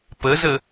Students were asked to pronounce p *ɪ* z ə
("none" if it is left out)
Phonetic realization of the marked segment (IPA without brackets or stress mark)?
ə